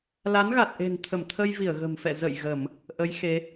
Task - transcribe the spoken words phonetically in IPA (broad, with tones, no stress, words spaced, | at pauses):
la˨˦nɣa˨˩t̚ʔe̤˨˩n t̪ʰə˧˩mt̪ʰə˧jvi˧˩ə̯ ɣə̤˨˩mfɛ̰˧˨ zə̰˧˨j ɣə˧˩˨m | ʔə˨˦j xe˨˦